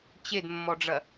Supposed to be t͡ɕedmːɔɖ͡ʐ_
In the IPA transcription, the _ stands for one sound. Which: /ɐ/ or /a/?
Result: ɐ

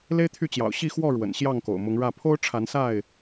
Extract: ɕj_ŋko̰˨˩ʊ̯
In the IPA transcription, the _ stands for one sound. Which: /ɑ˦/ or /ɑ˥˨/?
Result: ɑ˥˨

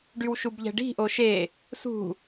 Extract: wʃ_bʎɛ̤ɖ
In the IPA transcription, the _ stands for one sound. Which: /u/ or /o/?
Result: u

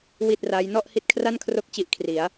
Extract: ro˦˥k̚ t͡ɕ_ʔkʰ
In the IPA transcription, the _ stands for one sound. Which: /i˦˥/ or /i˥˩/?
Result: i˥˩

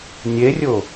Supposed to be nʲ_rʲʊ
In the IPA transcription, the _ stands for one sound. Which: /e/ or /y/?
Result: e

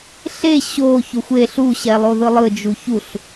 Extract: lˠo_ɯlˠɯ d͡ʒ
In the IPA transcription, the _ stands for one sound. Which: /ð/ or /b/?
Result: ð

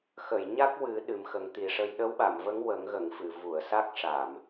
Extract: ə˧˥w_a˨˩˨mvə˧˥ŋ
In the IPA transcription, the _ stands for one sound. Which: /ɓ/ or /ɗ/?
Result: ɓ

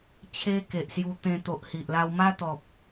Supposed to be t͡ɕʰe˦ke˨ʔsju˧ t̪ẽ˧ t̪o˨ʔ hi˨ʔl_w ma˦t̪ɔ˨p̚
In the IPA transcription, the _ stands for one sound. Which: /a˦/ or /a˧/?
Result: a˦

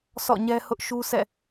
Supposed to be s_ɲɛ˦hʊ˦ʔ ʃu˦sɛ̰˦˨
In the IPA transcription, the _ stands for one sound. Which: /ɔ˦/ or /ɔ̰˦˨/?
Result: ɔ̰˦˨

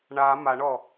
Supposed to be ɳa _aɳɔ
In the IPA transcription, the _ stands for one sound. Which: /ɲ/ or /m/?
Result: m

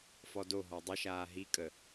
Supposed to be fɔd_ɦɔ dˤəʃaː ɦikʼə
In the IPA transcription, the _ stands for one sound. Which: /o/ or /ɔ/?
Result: o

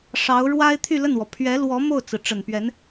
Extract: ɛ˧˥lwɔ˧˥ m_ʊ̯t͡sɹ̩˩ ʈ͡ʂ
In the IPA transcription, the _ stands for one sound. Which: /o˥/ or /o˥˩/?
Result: o˥˩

